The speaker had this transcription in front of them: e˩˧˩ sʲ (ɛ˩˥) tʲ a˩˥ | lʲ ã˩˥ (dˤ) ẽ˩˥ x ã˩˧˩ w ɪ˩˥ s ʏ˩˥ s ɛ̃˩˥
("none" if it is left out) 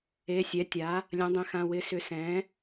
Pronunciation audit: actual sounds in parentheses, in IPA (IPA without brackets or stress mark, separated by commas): ɛ˩˥, dˤ